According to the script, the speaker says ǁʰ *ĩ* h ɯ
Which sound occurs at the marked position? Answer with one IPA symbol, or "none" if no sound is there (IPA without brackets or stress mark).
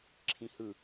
ĩ